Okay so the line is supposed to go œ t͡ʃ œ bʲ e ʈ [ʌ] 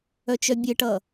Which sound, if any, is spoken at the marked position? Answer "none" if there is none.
ʌ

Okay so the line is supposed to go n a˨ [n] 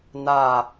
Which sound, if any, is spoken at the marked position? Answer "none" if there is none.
none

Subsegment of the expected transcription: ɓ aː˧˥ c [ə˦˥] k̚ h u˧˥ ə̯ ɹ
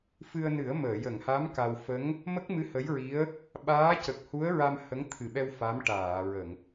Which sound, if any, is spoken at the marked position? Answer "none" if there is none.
ə˨˩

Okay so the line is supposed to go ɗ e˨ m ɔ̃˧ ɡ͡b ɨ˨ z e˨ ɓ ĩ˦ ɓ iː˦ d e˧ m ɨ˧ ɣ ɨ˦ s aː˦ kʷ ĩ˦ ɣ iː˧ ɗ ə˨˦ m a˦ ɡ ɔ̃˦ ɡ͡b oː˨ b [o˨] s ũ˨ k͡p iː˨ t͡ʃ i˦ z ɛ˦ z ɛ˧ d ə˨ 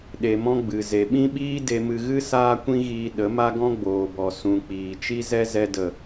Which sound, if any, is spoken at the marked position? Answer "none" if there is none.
ɔ˨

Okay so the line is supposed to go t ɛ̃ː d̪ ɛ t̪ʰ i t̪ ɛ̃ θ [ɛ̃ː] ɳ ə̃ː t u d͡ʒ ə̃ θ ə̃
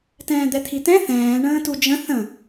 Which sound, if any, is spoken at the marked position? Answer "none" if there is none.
ɛ̃ː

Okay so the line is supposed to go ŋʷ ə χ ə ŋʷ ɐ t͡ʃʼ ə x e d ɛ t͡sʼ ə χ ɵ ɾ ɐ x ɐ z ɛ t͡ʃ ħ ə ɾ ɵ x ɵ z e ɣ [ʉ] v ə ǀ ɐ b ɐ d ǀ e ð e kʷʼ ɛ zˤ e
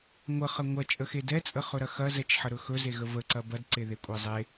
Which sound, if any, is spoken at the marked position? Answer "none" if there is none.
ə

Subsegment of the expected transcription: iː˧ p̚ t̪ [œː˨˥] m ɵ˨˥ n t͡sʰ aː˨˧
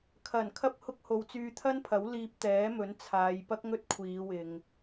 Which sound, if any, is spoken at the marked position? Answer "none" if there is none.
ɛː˨˥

